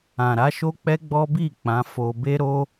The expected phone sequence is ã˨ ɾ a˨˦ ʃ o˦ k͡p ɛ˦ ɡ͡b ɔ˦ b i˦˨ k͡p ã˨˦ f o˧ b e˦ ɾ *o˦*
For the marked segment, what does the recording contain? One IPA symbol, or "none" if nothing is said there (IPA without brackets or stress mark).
o˦